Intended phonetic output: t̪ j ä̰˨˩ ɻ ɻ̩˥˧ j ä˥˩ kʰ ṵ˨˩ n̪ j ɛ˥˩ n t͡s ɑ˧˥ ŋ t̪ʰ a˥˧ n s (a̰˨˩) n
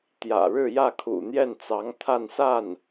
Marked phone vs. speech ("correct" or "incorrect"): incorrect